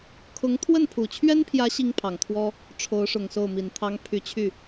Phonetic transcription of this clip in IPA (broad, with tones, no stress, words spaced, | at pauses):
kʰʊ˧˥ŋ t̪ʰwə˥˩npʰu˨˩t͡ɕʰɥɛ˥npʰjä˧˥ ɕi˥ŋpʰɑ˨˩ŋt̪ʰwɔ˥ | ʈ͡ʂʰo˧˥ʊ̯ʂʊ˨˩ŋ so˥˩ʊ̯mi˨˩nt̪ʰɑ˥ŋ pʰy˧˥t͡ɕʰy˥˩